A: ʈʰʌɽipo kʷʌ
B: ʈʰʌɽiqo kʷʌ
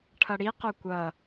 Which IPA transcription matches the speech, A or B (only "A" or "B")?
B